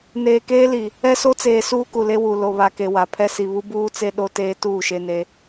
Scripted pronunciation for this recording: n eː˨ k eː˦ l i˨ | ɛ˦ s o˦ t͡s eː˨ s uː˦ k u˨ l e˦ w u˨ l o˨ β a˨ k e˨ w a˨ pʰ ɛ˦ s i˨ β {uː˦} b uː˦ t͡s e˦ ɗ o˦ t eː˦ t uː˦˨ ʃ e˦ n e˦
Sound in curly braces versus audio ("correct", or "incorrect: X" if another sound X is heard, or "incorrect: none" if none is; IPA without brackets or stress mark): incorrect: u˦